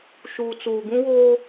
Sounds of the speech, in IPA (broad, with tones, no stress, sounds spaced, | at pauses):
ʃ uː˨ t͡s uː˨ ɡ ũ˦ w oː˦